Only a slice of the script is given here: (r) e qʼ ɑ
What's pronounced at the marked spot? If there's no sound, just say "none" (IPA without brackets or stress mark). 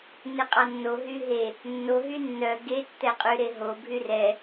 n